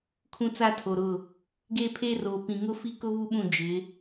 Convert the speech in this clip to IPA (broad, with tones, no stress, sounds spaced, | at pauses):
kʰ ũ˦ t͡s a˦ tʰ o˨ ɾ ʊ˦˨ | ɡ eː˦ pʰ eː˦ r oː˨ p ĩ˨ ŋ ʊ˦ f i˦ k ʊ˦ β u˦ ɓ ũ˦˨ d͡ʒ ɪ˨˦